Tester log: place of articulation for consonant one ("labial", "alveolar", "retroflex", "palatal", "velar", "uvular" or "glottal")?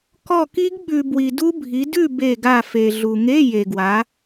velar